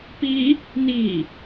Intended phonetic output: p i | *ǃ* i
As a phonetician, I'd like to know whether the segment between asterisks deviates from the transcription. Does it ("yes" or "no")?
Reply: yes